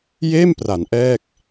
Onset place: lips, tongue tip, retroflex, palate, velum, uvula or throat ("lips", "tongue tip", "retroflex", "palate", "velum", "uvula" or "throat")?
palate